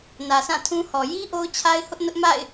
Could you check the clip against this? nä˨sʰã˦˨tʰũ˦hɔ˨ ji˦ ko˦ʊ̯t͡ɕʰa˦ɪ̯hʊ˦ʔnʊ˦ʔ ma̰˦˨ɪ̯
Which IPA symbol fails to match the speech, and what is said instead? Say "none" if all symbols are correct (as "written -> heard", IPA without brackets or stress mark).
k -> ʔ